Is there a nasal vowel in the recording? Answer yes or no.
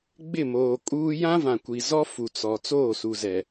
yes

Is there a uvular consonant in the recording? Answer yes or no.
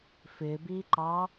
no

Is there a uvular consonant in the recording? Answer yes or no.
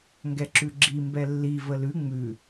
no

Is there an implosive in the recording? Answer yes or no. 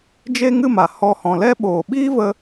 yes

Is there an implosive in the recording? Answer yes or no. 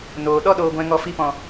yes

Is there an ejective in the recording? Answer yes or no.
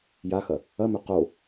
no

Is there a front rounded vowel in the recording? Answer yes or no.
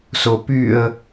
yes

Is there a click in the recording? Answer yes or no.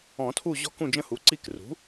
yes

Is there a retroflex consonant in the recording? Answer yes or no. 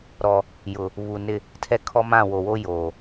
no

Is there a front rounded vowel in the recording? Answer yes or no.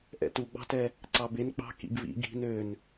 yes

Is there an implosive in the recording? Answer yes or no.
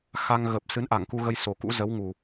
no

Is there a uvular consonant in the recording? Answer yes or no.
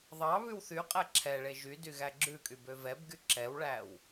yes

